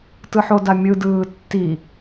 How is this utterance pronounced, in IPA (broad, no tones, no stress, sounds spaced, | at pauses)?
t ɯ ħ o d a mʲ ɯ d ɯː tː i